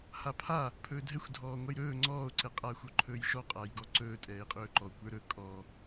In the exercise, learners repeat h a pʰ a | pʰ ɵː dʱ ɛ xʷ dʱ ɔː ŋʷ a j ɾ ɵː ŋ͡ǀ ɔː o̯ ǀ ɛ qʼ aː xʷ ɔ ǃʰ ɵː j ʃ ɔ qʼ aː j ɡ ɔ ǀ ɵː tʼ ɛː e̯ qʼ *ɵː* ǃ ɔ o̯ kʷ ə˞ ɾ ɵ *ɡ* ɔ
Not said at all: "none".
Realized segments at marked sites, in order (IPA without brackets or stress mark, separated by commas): ɵː, kʼ